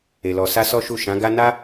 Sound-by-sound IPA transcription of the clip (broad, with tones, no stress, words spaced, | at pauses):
e˨lɔ˨ sa˧ sɔ˦ʃu˦˨ ʃã˨˦ɡa˦ na˦